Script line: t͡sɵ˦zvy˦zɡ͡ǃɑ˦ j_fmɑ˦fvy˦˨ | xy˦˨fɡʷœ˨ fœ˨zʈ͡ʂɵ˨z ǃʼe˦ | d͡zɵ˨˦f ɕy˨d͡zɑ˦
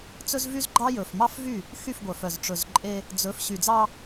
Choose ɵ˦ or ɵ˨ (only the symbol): ɵ˨